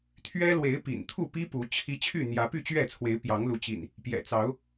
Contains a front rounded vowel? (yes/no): yes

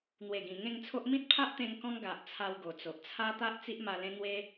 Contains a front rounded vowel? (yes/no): no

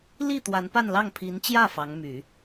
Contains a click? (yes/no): no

